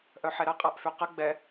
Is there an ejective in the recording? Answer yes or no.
yes